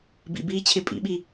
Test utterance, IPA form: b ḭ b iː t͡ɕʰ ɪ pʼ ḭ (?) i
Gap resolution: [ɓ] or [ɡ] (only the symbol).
ɓ